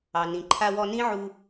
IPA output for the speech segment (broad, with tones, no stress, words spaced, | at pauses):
ɑ˩nĩ˩ ǃʰa˧wɔ˧nĩ˥ ʕu˧